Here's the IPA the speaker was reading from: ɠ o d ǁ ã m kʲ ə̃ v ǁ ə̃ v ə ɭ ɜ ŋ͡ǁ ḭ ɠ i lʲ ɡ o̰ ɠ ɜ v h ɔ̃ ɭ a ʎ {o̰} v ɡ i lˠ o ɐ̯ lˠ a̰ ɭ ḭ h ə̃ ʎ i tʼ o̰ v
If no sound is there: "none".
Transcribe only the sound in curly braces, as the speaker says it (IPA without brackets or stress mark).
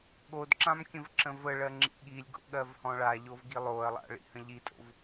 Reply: o